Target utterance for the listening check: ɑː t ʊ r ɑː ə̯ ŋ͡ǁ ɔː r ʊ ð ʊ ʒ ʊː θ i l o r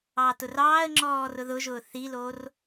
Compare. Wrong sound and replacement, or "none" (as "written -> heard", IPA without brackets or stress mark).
none